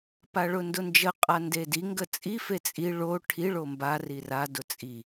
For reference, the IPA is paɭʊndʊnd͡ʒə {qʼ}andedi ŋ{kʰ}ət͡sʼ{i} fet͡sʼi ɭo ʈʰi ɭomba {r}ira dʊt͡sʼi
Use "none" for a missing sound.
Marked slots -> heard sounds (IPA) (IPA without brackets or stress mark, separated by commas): qʼ, ɡ, i, r